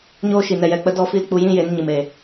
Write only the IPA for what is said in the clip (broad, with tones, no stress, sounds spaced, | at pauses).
ɲ oː˦ ʃ i˨ n ɛ˨ j ɛ˨ k͡p ə˧ d ɔ˦ f i˦ l k͡p u˧ j ĩ˦ j e˨˦ n ɲ ɨ˨ m e˨